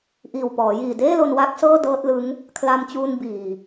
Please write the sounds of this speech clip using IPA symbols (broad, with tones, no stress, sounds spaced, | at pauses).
ʔ iː˨˩ w p ɔː˩˦ j iː˨˩ d eː˥˩ l o˧ n w a˥˩ k̚ s ɤː˥˩ d ɤː˦˥ t̚ l ɯ˦˥ ŋ | kʰ l a˧ m t͡ɕ uː˧ n b iː˨˩